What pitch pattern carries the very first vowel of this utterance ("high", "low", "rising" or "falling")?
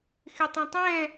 low